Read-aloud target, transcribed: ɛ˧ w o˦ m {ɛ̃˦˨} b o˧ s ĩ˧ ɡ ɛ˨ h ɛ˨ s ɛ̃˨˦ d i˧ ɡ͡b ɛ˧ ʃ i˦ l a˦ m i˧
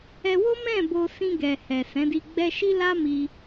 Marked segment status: correct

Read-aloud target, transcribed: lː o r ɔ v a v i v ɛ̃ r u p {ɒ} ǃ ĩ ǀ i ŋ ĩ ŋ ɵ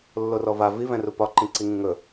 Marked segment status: correct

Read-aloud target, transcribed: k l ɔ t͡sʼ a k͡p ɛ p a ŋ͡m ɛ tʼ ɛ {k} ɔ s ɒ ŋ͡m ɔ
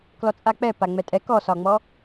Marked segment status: correct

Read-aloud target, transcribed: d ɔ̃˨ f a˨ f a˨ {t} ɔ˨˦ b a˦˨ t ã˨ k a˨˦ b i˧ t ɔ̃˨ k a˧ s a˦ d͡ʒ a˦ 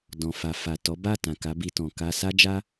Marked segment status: correct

